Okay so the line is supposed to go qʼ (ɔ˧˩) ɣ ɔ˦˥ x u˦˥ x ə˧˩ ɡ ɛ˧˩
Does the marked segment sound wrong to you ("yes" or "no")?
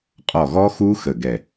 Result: no